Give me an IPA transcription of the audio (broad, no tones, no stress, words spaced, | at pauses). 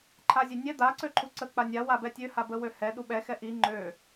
ǃʰazʲɛnʲɛ d̪a ǀøǃʰuǀə k͡panʲa wabɛtʲø habəwøhɛ ɗuɓɛ xɛʔi ŋ͡ǃø